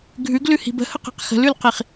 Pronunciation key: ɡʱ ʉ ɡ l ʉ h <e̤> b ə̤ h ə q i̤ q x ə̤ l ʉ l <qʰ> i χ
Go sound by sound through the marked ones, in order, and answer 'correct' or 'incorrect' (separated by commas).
incorrect, incorrect